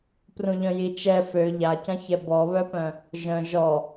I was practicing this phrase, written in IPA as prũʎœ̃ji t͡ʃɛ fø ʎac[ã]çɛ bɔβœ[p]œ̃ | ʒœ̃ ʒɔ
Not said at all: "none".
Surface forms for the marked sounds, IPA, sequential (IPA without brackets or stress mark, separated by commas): ã, p